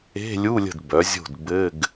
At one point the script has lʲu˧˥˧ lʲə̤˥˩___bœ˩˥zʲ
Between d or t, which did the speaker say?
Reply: d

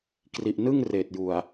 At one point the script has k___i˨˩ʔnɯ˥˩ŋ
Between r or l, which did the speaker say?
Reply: r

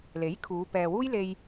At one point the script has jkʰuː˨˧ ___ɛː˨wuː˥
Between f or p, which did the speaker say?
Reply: p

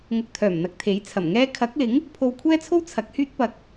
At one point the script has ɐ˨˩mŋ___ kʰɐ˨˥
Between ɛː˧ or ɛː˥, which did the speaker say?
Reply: ɛː˥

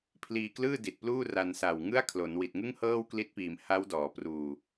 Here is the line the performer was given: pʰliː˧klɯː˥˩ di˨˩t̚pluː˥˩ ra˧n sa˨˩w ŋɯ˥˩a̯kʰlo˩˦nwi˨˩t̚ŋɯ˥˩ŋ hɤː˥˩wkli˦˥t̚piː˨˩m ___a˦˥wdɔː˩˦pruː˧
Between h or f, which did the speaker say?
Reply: h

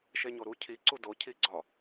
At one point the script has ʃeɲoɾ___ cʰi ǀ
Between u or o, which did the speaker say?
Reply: u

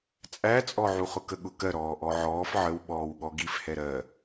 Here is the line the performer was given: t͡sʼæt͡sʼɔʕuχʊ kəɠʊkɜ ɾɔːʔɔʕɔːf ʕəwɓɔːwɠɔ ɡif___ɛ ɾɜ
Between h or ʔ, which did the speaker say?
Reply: h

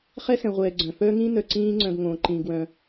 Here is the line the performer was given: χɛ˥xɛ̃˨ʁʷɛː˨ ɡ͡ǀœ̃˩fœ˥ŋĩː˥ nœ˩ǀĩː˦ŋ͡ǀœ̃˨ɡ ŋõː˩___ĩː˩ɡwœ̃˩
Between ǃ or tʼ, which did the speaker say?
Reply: ǃ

